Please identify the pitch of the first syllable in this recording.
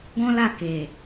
high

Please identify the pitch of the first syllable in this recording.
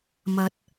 low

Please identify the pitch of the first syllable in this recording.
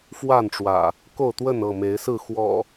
falling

